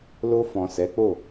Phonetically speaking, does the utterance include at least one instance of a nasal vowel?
yes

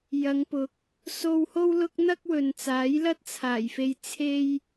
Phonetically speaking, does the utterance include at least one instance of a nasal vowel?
no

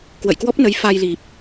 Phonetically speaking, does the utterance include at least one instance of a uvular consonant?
no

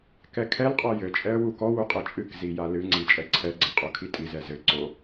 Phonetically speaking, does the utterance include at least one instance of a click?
yes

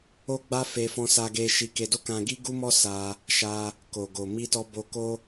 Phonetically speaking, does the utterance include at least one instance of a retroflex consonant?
no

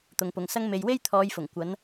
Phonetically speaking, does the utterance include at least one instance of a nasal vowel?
no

